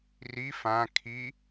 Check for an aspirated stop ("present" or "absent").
present